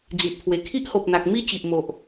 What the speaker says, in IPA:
d͡z i˨ ʔ pʰ w e˨˩ kʰ i˦ ʔ h o˨ p̚ n̪ a˨ k̚ m i˥˧ t͡ɕ i˨ ʔ m o˨ ʔ

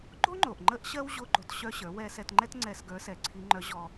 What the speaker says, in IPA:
ɡ͡ǃ o˥ ŋ͡ǃ o˩ ʔ ŋ͡ǃ ə˥ ʔ ɕ ɜ˥ w ʑ o˧˥ ɡ͡ǃ o˩˧ t ɕ œ˧ ɕ ə˞˩˧ w ɛ˧ s ɛ˧ t ŋ͡ǃ ɛ˥ t ŋ͡ǀ ɛ˧ s ɡ ə˞˧˥ s ɛ˩ ǀʰ i˧˥ ŋ͡ǃ œ˧˥ ʑ ɔ˧

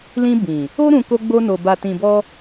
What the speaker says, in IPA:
l ĩ˧ b ĩ˨ | o˦ ɾ ũ˧ k o˧ ɡ͡b o˧ n o˨ b a˨ t ĩ˨ b ɔ˧

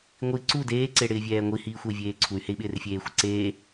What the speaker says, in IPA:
ŋʷ i ǀ u d eː ǀ e ɽ ɪː vʲ ɛː ŋʷ i h iː xʷ ɤ i̯ vʲ eː ǀʰ u y̯ h e i̯ ɓ ɪː r ɪ fʲ eː xʷ ɤ ǀ eː

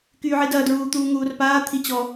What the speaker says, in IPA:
k yː ʕ i d ɐː d ɹ uː t̪ uː ŋ uː r p aː t̪ʰ i t͡ɕ ɔ

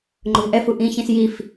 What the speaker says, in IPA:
ŋ͡ǃ ʊ v ʔ ɛ f u ʔ ĩ ç ĩ s j i f

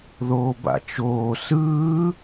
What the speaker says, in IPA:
ð oː b a̰ t͡ʃ oː s ɯː

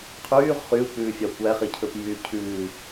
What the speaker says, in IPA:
qʰ yː ʁ χ y u̯ k͡p ʉː fʲ ɑ kʷ æ χ i cʰ ɵ p j y cʰ ʉː

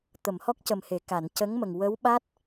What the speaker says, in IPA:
t̪ ə˨˩˨ m h ɔ˦˥ k̚ c ə˨˩ m h e˨˩˨ k a˨˩˨ n c ə˧˥ ŋ m ə˨˩ ŋ w ə˧˥ w ɓ a˦˥ t̚

